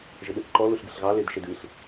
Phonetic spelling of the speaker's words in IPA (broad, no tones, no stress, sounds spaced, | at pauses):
ʒ ɪ ɗ ɨ θ ǃ ɔ l u ɬ ɡ ɨ ɬ ɣ ɑ l e d ʃ e d ɨ ɬ